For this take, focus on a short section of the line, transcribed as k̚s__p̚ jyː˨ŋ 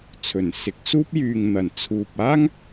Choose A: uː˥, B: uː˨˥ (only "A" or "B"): A